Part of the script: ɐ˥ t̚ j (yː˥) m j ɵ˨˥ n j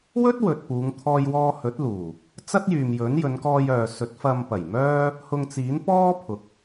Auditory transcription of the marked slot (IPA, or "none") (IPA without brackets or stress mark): yː˨